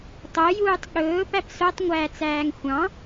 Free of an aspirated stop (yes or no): yes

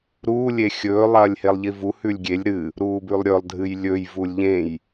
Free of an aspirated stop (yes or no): yes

